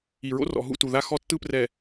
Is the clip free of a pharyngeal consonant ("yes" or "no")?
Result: yes